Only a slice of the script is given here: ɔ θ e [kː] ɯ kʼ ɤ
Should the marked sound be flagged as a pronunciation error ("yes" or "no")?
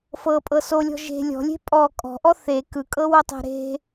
yes